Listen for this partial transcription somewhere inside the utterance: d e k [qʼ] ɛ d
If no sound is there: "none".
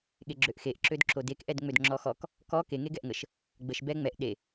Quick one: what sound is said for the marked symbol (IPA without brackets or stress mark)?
ʔ